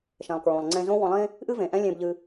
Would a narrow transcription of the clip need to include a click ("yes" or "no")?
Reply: yes